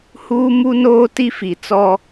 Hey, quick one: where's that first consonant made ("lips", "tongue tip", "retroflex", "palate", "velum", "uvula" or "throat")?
throat